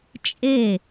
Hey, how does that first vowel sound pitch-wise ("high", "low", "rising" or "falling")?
falling